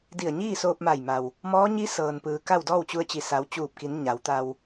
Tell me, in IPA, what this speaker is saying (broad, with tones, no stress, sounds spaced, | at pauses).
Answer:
d i˧˩ ə̯ ɲ iː˥˨ s oː˧ p̚ m a˧˩ j m a˩ w | m ɔː˧˥ ɲ i˧˥ s ɤː˩ n p ɯː˩ k a˥˨ w d ɔː˥˨ w t͡ɕ u˧ ə̯ t͡ɕ i˧˩ s a˩˧ w t͡ɕ uː˧˩ p̚ k i˩˧ n ɲ a˩˧ w t̪ a˧ w